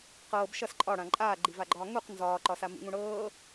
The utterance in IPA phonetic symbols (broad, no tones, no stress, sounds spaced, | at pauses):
q ɤː b ʃ ʌ s ǃʼ ɒ ɽ ã ǃʼ aː ɡ͡ǃ i v a ɡ͡ǃ ɒː ŋ u q n z ɒː ǃ ɒ s a m ḭ ŋ ũ ɽ ɤː